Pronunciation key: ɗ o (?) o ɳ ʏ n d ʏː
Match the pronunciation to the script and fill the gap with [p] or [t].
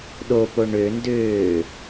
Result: p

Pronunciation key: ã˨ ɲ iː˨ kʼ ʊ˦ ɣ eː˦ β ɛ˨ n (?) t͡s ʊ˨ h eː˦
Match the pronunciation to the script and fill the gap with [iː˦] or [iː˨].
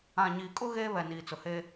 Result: iː˨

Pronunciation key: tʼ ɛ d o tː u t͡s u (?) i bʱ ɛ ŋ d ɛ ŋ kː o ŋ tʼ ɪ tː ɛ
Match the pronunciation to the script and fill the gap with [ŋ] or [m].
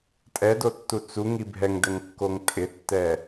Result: ŋ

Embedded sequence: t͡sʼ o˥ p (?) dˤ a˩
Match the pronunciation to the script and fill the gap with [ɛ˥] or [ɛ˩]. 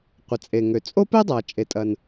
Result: ɛ˥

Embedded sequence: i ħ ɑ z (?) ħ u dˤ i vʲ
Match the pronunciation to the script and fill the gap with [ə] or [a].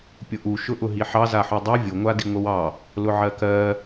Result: a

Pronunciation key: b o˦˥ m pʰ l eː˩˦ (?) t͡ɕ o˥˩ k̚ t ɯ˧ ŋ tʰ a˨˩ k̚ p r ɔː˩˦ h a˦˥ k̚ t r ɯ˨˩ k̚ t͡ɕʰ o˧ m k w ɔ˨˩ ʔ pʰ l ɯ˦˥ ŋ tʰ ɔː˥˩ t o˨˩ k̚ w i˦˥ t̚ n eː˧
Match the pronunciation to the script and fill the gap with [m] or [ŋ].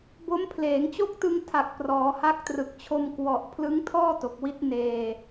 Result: ŋ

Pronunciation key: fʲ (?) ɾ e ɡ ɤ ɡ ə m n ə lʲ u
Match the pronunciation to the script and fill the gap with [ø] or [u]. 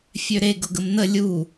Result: ø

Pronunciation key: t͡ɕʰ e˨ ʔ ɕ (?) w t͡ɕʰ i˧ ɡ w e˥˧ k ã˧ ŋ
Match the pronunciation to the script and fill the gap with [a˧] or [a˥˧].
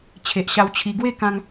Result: a˧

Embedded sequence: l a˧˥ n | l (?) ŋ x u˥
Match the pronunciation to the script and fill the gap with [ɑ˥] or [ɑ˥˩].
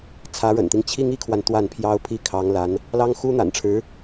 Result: ɑ˥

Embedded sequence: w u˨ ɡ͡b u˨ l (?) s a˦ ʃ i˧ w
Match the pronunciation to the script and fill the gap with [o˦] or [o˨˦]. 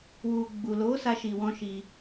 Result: o˨˦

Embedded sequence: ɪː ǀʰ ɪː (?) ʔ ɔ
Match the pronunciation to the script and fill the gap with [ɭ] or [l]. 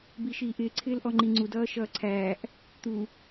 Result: l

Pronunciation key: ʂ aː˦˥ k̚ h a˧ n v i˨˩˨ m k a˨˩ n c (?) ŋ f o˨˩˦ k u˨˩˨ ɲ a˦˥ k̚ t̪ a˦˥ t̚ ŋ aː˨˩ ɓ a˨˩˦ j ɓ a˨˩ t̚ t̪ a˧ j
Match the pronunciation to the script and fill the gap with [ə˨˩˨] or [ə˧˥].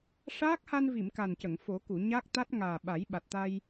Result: ə˨˩˨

